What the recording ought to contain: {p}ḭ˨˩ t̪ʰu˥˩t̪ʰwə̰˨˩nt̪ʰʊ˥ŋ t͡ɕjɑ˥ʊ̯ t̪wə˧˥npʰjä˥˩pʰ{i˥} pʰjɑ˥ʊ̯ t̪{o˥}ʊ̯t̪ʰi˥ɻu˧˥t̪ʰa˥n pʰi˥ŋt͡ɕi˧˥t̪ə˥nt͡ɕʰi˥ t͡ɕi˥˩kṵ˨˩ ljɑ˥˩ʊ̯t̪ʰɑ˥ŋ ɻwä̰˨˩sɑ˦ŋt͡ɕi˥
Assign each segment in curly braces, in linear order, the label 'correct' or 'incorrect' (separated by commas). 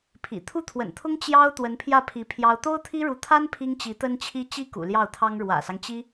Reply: incorrect, incorrect, correct